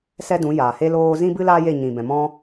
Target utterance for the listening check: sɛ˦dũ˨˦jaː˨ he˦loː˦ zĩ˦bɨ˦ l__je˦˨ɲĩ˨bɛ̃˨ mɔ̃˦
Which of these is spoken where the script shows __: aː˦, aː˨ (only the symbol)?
aː˦